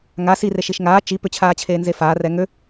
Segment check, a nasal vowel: absent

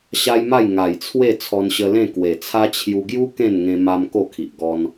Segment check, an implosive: absent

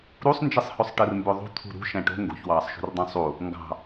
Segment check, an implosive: absent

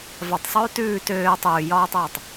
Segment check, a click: absent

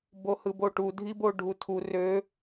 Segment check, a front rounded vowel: present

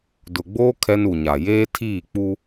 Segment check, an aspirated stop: present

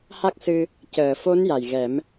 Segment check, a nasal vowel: absent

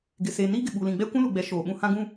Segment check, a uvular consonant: absent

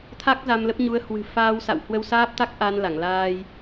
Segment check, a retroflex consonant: absent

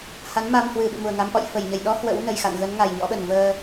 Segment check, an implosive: present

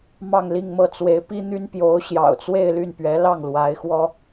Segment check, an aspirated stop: absent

